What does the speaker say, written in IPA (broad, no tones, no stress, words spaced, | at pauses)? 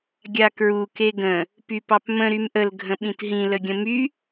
ɡʲakɹu keɡə̃ | pypɑpmə̃ ɾymʔəl ɡʱə̃ɓĩtɦĩ ləɡʲə̃my